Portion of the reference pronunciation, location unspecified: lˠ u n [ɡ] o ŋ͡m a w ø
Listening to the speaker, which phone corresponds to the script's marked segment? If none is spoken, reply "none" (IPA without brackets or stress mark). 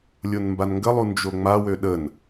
d͡ʒ